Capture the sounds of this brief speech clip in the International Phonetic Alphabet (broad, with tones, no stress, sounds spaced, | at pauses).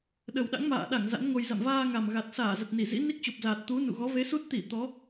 ɗ ə˨˩ w ɗ a̰˧˥ ŋ m a̰ː˧˨ ɗ a˧˩ ŋ z a̰˧˥ n ŋ o˧ j z a̰˧˨ m v aː˧ ŋ a˨˩ m ɣ a˨˩ t̚ s aː˧˩ z ə˨˩ t̚ n i˧˩ z ḭ˧˥ n i˦˥ k̚ t͡ɕ o˨˩ p̚ z aː˨˩ t̚ t̪ u˨˦ n ṵ˧˨ ɣ ɔ˨˦ v e˨˦ s u˦˥ t̚ t̪ i˧˩ t̪ ɔ˨˦